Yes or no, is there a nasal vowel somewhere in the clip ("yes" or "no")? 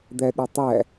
no